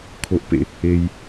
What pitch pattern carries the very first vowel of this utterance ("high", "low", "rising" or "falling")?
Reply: low